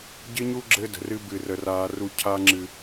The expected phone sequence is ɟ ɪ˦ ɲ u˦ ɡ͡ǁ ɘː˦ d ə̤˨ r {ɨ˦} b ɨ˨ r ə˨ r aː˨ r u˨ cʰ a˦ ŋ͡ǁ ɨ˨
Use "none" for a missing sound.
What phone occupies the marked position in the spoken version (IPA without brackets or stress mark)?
ɨ˦